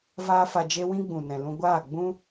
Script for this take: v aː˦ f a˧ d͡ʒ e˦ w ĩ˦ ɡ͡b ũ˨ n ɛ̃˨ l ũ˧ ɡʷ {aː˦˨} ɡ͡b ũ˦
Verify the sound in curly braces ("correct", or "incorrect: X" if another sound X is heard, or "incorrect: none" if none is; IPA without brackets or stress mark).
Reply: correct